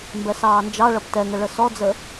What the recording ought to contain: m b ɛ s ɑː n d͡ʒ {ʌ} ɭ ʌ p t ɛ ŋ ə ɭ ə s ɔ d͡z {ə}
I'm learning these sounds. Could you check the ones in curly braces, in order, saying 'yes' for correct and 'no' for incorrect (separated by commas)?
no, yes